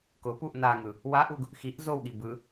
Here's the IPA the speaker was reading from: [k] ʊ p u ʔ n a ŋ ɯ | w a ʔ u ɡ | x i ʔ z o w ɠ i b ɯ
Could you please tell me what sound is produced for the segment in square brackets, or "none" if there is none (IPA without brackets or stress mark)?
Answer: k